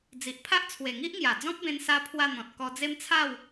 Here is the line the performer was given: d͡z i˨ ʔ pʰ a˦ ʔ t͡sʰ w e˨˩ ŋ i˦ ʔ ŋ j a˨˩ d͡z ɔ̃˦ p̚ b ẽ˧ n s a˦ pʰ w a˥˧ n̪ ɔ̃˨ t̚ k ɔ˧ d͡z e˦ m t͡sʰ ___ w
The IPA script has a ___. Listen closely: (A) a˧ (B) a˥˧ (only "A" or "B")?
B